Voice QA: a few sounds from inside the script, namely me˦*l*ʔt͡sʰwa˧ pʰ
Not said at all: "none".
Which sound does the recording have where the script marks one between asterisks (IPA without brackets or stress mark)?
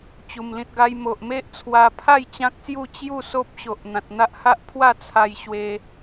none